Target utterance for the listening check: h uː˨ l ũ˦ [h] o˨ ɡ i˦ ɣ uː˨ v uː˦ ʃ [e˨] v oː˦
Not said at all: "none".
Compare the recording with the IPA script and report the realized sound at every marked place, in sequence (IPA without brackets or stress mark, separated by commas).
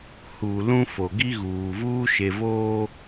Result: f, e˨